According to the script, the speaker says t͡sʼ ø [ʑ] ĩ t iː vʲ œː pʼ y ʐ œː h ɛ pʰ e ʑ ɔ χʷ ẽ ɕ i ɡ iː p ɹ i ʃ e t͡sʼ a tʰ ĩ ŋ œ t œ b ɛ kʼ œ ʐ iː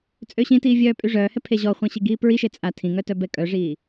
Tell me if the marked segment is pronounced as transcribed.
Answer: no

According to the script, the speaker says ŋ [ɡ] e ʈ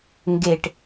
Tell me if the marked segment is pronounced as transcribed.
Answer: yes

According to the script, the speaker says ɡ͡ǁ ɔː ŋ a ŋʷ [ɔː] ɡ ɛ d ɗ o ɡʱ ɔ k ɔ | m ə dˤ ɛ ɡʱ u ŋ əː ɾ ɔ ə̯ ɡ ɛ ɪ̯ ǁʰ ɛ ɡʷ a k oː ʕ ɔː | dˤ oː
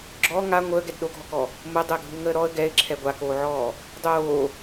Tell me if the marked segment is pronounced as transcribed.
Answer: no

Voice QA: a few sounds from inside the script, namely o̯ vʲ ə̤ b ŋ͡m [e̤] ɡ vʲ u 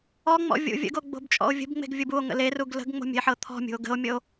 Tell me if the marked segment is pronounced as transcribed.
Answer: yes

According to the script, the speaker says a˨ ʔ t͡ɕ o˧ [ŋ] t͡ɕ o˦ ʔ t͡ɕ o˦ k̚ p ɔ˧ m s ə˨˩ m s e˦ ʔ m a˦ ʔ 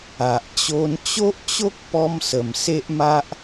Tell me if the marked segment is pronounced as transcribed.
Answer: no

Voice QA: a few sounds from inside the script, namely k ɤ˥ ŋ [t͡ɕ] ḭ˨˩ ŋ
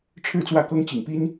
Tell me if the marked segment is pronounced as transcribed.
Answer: yes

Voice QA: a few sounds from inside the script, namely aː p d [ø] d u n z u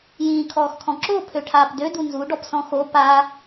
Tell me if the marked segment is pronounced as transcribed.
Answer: yes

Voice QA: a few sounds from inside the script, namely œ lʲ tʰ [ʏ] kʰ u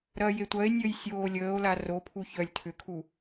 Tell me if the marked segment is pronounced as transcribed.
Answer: yes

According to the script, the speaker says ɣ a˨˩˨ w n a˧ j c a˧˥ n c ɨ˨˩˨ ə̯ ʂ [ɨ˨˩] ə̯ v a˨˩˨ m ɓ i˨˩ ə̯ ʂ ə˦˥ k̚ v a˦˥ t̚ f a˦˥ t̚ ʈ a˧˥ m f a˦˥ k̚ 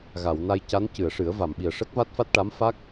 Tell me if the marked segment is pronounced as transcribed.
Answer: no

